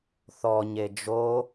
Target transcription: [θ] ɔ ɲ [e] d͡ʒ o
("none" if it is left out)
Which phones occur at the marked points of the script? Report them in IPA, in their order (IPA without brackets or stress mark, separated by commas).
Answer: θ, e